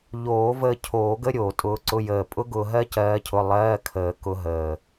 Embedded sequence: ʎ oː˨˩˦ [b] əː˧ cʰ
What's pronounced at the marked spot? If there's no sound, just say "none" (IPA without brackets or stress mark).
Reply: v